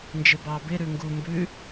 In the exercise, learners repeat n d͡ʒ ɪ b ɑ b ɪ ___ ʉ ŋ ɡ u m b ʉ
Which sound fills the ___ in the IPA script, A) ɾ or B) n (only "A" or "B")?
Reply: A